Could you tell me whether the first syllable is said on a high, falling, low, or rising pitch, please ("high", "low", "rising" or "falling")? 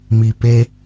low